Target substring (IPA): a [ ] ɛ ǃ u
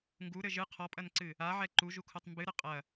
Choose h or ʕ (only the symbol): ʕ